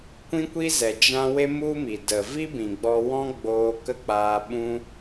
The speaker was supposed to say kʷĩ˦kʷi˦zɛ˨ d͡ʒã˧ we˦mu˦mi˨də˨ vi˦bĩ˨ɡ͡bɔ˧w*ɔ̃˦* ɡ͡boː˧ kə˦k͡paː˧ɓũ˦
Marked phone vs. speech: correct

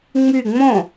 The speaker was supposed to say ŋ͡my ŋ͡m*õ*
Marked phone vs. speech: correct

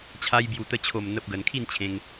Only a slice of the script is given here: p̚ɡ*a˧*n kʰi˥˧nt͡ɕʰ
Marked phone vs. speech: incorrect: ə˧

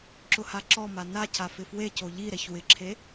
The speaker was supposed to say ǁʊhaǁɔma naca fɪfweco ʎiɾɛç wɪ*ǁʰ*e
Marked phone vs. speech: correct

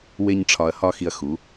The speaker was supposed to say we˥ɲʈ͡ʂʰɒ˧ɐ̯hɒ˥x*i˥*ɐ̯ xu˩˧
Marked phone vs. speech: incorrect: i˧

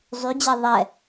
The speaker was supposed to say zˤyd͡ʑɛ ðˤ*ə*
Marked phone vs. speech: incorrect: ɛ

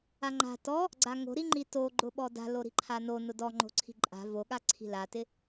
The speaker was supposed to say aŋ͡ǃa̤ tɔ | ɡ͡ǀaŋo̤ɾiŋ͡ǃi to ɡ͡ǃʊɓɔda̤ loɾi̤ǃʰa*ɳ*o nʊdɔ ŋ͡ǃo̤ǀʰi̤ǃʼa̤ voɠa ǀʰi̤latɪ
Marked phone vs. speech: incorrect: n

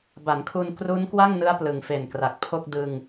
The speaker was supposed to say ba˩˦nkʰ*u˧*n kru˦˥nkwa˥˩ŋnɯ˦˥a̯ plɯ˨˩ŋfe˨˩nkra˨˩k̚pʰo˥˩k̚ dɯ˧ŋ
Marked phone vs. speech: correct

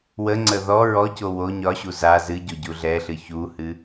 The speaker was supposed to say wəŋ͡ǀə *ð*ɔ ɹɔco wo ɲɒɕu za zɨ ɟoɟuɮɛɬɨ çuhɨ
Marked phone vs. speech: correct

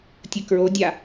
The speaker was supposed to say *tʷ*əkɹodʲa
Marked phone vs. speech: incorrect: tʲ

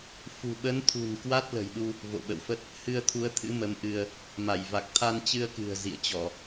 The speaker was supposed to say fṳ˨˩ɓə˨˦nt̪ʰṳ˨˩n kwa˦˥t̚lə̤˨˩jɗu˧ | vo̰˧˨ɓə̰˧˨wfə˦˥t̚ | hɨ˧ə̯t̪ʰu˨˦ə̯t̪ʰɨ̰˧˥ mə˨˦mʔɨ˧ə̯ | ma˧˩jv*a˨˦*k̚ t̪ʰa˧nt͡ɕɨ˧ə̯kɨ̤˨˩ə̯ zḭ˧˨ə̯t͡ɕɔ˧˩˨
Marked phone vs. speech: incorrect: a˨˩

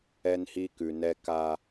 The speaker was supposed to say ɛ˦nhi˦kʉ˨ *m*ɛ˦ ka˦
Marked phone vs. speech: incorrect: n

